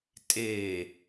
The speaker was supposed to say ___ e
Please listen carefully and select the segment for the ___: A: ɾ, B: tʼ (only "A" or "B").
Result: B